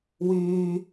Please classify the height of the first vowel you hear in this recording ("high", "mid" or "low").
high